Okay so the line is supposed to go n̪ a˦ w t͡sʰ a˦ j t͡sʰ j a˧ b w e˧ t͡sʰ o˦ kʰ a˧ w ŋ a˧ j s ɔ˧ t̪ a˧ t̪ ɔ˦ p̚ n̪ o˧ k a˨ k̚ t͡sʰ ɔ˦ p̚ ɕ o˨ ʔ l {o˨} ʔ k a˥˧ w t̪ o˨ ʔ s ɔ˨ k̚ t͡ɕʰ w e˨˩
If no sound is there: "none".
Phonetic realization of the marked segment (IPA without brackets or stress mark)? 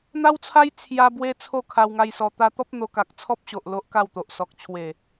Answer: o˦